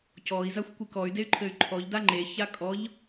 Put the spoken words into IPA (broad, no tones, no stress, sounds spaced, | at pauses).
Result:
c ɔ i̯ z a xʷ kʷ i k ɔ y̯ d e y̯ ǃʰ ɘ y̯ ǃʰ ɔ ʎ d a ŋ͡ǃ e ç a kʼ ɔ ʎ